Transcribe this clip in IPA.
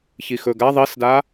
ç i x ɵ ɡ a ðˤ i s d a

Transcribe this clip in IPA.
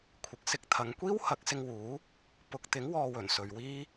kʷʰ ɪ˨˥ k̚ s ɪ˧ k̚ t̪ʰ ɐ˨˧ ŋ kʷ iː˥ w h ɐ˨˥ k̚ s ɪ˧ ŋ w uː˨˥ | p ʊ˨ k̚ t̪ ɪ˨˥ ŋ w ɔː˧ w ɵ˨˩ n s ɵ˨ ɥ w iː˥

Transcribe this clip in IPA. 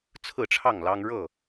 t͡sʰ ɹ̩˥˨ ʈ͡ʂʰ ɑ˥˨ ŋ l ɑ˦ ŋ ɻ ɤ˥˨

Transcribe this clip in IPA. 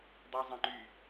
dˤ y zˤ ɛ̃ ŋ͡ǃ y

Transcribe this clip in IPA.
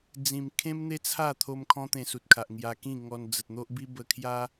d͡z ĩ˨˩ m kʰ ẽ˦ m n̪ e˦ t͡sʰ a˥˧ t̪ʰ o˧ m kʰ ɔ̃˦ t̪ ẽ˧ s u˨ t̚ kʰ a˨ ʔ ŋ j a˧ k ĩ˥˧ ŋ ɔ˧ n d͡z ə˨ t̚ n̪ o˦ ʔ b i˦ b ə˧ kʰ j a˦

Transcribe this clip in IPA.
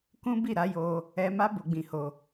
k ũ˦ b i˦˨ ɾ a˨˦ j o˧ | ɛ˧ m a˦ b o˧ ɡ͡b ĩ˧ h o˧

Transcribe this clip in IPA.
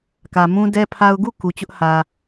k ä˨ m ũ˦ d ɛ˦ pʰ a˦ ʊ̯ ɡ u˦˨ k u˨ t͡ɕ ʊ˦ ʔ h ä˨

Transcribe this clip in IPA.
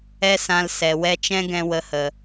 ɛ˦ s ã˧ l s ɛ˨ w ɛ˧ t͡ʃ ɛ̃˦ ɡ ɛ̃˧ w ə˨˦ h ə˨

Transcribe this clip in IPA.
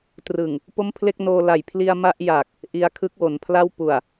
t r ɯ˨˩ ŋ | p o˥˩ m pʰ l e˥˩ k̚ n oː˧ l a˨˩ j pʰ l i˧ a̯ m a˥˩ ʔ j a˨˩ k̚ | ʔ i˧ a̯ kʰ ɯ˦˥ k̚ w o˩˦ n pʰ l a˥˩ w p u˨˩ a̯

